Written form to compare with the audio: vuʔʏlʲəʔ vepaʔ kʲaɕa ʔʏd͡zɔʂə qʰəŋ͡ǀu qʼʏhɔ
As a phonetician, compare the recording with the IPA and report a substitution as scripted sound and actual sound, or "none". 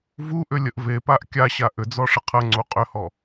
none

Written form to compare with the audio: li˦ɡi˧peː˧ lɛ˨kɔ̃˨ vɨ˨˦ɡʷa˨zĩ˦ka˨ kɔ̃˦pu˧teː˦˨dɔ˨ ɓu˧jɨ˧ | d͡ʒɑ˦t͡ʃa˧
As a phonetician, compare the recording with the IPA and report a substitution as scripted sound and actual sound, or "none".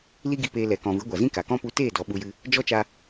ɑ˦ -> ɔ˦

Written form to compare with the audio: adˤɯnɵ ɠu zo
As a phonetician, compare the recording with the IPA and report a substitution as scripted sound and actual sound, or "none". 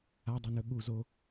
ɯ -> u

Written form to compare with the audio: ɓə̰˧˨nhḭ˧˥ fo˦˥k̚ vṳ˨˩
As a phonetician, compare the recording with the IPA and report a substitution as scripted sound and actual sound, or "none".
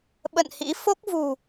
none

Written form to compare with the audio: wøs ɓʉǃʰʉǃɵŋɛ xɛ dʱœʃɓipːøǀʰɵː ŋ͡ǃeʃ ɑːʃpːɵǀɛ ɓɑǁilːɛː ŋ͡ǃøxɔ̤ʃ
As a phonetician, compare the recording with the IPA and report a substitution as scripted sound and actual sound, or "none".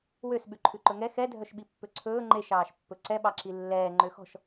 none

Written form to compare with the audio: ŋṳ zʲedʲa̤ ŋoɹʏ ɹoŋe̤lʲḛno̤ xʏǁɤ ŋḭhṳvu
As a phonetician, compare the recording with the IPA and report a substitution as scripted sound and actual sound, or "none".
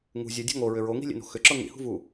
e̤ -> i̤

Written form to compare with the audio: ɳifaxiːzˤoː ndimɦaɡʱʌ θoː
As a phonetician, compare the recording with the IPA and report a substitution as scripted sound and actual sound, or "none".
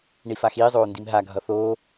none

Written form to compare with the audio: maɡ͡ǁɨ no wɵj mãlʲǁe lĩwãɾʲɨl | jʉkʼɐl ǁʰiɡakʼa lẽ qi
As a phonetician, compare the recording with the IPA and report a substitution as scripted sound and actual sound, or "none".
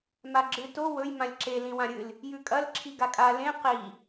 n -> t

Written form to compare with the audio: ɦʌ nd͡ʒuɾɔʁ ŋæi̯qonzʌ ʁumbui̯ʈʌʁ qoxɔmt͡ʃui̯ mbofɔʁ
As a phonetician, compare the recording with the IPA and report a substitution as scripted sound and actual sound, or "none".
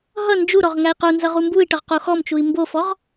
none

